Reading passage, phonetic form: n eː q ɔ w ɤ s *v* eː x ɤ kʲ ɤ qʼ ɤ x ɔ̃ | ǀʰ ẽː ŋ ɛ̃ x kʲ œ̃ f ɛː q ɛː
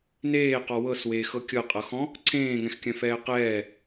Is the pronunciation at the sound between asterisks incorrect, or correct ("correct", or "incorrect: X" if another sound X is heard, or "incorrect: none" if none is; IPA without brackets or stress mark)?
incorrect: w